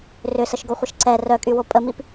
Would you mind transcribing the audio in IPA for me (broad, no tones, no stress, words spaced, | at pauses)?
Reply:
rʏsəʃɡoχʷəʃ ǀɛ rœkʼywo pʼəmip